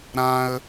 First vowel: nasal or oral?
nasal